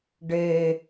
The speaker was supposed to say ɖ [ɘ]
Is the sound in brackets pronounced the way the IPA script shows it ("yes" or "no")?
no